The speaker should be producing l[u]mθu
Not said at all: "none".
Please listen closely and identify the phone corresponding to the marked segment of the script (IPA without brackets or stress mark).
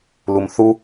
u